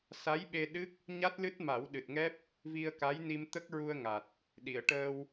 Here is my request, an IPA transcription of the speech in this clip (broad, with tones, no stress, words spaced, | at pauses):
sa˧˥jɓe˧ɗɨ˦˥k̚ | ɲa˦˥t̚lɨ˦˥t̚ ma˨˩˦wɗɨ˨˩t̚ŋɛ˦˥p̚ | vi˧ə̯ka˧˥jni˧mt̪ə˦˥k̚ ɹu˧ə̯ŋa˨˩t̚ | ɗi˨˩˨ə̯ʈəː˧w